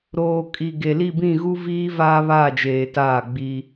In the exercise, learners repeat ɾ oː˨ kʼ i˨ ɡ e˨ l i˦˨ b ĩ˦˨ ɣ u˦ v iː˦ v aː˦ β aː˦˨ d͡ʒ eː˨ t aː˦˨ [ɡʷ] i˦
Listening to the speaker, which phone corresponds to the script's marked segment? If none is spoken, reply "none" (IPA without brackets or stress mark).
ɡ͡b